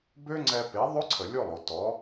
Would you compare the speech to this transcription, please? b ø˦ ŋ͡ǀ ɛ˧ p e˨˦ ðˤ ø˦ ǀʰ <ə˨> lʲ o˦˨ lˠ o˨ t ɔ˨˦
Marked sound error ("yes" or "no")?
no